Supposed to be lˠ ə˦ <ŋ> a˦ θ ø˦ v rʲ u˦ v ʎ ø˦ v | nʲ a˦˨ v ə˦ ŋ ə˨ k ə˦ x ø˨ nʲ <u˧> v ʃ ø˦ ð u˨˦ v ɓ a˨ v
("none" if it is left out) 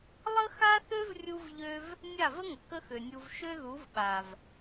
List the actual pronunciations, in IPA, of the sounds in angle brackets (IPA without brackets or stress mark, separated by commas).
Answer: x, u˧